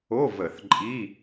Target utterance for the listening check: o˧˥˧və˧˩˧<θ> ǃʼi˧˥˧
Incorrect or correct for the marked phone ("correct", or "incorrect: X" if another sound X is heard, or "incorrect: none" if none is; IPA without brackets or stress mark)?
correct